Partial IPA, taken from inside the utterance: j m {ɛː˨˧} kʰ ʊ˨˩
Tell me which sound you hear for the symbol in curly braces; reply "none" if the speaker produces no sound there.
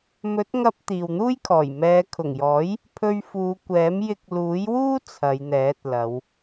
ɛː˨˧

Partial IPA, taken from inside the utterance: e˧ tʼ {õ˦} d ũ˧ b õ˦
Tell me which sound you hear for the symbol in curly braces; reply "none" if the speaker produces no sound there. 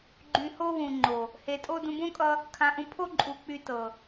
o˦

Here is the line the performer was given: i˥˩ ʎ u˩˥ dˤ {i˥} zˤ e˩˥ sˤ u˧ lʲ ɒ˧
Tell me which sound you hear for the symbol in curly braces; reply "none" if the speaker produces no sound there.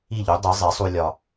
i˩˥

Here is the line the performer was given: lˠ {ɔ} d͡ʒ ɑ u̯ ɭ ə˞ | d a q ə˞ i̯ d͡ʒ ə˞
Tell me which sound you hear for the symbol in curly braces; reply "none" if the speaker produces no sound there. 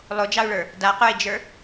o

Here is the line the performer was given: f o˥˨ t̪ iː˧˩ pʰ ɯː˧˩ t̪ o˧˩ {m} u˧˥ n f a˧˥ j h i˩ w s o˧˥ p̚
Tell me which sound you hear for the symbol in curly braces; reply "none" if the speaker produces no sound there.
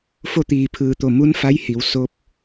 m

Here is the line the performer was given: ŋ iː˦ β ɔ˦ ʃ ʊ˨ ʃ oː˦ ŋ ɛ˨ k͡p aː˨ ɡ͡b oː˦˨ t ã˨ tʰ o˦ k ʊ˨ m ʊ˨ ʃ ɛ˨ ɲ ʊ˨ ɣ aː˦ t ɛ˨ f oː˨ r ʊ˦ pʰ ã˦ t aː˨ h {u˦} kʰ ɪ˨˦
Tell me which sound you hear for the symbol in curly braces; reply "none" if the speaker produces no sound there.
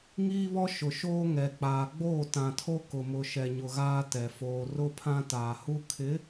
u˦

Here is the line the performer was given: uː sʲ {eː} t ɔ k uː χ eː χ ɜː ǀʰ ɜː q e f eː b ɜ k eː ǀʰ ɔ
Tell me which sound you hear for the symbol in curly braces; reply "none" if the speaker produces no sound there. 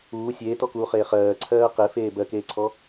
eː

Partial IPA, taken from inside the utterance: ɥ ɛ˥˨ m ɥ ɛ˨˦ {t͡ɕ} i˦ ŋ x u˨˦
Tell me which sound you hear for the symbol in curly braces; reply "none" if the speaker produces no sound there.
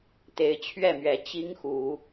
t͡ɕ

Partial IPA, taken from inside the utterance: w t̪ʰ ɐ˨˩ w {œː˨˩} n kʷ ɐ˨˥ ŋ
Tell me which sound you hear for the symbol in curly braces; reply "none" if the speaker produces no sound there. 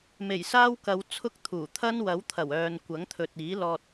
œː˨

